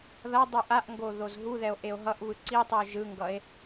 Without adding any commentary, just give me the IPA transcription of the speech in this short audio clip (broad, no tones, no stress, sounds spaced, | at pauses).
ð ʌ dˤ u ʔ a ʔ ŋ ɡ o ð o z ɦ u ð ɛ o̯ ʔ e o̯ ɦ ʌ ʔ β ɯ ǀ i tˤ ɯ o̯ ʒ ɯ ŋ ɡ ʌ e̯